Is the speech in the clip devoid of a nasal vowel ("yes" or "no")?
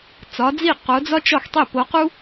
yes